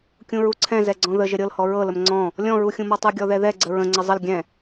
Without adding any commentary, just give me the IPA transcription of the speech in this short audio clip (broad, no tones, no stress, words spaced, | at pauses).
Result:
kʲũɹuǀʰɛ̃zɛ ɡ͡ǀɔ̃ðəʒə ɾʲɤlhɔ ɹɤləm ŋ͡ǀɔ̃ | lʲɔ̃ɹuxʲũmɔ tˤuɡʲɔðɛðɛ ɡ͡ǀəɹə̃ ŋ͡ǀəzˤəl ɡʲɛ̃